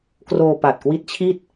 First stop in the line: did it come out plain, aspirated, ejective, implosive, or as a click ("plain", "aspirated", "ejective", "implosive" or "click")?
plain